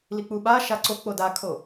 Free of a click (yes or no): no